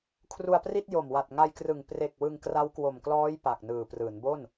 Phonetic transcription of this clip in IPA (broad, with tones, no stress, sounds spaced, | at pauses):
kʰ r u˧ a̯ p r i˥˩ t̚ j o˨˩ m w a˨˩ t̚ ŋ a˧ j k r ɯ˨˩ ŋ p r e˨˩ k̚ w ɯ˧ ŋ k r a˦˥ w k w o˨˩ m k l ɔː˦˥ j p a˨˩ k̚ n ɯː˨˩ p r ɯː˩˦ n b o˥˩ n